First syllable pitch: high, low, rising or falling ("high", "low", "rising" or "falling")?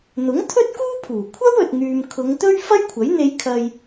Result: rising